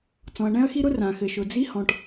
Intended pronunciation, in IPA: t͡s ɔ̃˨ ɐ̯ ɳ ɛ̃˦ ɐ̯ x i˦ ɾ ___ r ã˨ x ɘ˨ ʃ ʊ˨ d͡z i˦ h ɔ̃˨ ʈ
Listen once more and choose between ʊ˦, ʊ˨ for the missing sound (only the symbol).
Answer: ʊ˦